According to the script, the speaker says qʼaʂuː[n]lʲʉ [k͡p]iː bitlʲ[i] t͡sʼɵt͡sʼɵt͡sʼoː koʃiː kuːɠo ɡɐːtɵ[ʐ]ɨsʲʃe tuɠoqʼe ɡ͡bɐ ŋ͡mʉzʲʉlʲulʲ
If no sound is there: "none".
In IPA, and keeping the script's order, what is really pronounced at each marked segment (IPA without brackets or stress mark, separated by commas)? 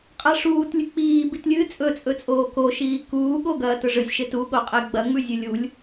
t, k͡p, ɨ, ʐ